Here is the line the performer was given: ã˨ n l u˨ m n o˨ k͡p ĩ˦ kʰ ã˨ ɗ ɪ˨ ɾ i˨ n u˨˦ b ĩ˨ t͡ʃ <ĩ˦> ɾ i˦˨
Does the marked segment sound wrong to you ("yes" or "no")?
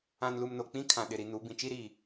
yes